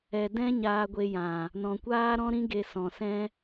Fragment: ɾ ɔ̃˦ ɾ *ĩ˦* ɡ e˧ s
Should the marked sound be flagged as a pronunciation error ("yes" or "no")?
no